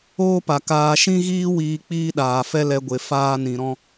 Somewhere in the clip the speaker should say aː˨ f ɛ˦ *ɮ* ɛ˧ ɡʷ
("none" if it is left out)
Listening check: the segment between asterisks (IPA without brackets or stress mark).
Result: l